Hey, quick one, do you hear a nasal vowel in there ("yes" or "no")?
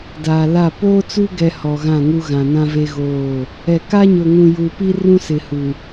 yes